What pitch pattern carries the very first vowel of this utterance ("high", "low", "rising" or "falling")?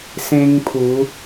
high